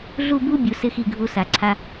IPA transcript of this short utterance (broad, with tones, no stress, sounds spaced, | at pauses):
ɮ u˥˧ b u˥ bʲ u˩˧ s ɪ˥˧ x i˧˩ ɡʱ u˧ s a˩˧ ǀʰ a˧